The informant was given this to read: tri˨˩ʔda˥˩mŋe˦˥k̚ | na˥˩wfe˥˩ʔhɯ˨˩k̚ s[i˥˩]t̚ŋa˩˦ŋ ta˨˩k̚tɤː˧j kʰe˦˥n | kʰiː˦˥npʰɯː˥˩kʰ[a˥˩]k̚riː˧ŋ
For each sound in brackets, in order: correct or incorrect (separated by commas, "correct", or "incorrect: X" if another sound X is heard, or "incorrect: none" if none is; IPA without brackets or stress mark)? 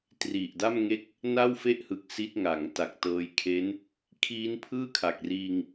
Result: incorrect: i˦˥, incorrect: a˨˩